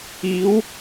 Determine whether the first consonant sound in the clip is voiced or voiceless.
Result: voiced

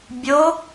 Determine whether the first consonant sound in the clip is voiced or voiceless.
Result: voiced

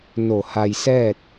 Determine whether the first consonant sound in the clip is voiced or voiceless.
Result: voiced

